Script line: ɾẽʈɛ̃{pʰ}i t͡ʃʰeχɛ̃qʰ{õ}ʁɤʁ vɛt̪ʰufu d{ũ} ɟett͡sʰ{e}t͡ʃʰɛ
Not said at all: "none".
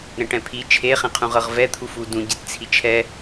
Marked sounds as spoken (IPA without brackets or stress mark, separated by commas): pʰ, ũ, ũ, i